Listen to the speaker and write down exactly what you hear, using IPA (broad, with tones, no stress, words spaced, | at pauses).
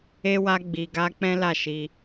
e˦wa˦ ɡ͡bi˧ ɡa˦ k͡pɛ̃˦la˦˨ʃi˧